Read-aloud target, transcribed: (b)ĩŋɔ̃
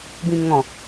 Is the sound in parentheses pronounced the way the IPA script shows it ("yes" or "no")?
yes